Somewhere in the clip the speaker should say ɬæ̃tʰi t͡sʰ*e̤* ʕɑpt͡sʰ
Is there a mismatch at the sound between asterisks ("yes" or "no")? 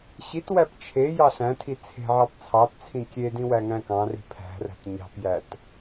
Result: no